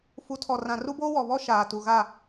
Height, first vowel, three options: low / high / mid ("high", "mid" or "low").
high